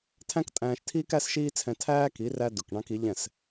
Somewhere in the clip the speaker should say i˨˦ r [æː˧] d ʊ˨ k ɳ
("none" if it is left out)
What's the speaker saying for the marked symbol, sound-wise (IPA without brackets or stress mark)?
æ˧